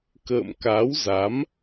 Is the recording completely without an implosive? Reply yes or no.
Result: yes